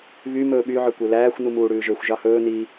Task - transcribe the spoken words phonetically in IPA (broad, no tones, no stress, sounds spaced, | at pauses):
β y m ɵː ɓ y ʕ ø kʷ e l æː xʷ n u m uː ɽ ʉː ʒ ø xʷ ʒ ɑ h ɵː n i